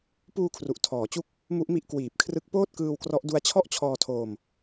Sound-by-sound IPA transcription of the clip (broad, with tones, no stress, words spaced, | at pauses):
puː˧kʰru˨˩ʔ tʰɔː˩˦t͡ɕu˥˩k̚ | mu˦˥ʔmi˦˥ʔ kwiː˨˩p̚kʰrɯ˦˥k̚ poː˥˩t̚kɯː˧wkrɔ˦˥ʔdu˦˥a̯ t͡ɕʰɔ˥˩ʔt͡ɕʰɔː˧tʰoː˧m